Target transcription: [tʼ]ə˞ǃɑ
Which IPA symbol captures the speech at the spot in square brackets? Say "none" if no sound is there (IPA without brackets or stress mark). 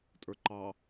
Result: tʼ